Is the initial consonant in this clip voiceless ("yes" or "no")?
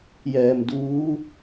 no